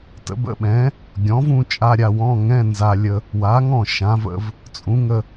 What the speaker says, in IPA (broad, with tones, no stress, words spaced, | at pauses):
tə̰˧bə̰˧˥˧ɓɛ̃˩˥ | ɡʲɔ̃˩˥vũ˥˧ t͡ʃʼa˧˥˧ɾʲa˥˧wɔ̃˧˥˧ ŋɛ̃˧˥˧nza˧lʲə˧ | wa˩˥ŋɔ̃˥˩ ʃã˩˥və̰˧v | t͡sʼũ˩˥ŋə˥˧